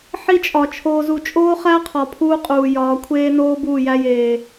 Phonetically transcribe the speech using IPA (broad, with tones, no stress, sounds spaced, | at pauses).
ħ i˦ t͡ʃʼ ɒ˨ t͡ʃʰ oː˨ z u˨ t͡ʃʼ oː˦ χ æ˦ qʰ ɒ˨ pʰ uː˦ qʼ uː˨ j ɒː˨˦ kʷʰ eː˦ n oː˦ b uː˦˨ j æ˦ j eː˨